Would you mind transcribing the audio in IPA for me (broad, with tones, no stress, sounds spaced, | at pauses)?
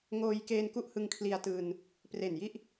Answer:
ŋ oː˧ j k eː˧ n k u˥˩ ʔ h ɯ˧ ŋ kʰ l i˧ a̯ t ɯː˧ n | p r e˨˩ n j i˥˩ ʔ